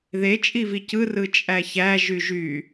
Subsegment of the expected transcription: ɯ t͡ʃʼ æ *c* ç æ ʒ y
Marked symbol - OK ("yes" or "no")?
no